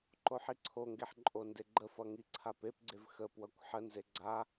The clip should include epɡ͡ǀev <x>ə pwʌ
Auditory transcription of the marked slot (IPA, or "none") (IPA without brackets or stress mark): x